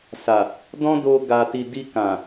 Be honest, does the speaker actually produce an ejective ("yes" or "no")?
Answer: no